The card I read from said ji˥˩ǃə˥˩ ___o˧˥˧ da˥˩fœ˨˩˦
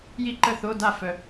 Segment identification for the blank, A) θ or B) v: A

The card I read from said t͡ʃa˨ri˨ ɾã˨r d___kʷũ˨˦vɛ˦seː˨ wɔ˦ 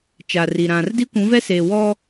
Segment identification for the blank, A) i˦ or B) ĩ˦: A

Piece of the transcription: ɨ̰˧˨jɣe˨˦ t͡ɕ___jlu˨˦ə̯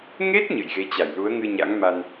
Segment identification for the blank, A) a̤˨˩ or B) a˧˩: B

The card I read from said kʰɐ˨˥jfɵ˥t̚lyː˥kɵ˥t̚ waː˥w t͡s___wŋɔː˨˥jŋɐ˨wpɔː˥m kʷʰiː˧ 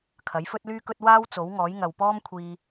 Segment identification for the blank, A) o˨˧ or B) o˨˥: B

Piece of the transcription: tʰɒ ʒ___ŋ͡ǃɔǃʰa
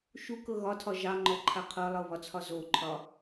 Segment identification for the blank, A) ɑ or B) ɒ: A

